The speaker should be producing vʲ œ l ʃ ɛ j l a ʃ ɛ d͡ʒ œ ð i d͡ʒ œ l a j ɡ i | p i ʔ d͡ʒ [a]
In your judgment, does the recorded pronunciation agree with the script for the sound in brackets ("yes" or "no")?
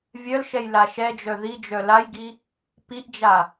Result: yes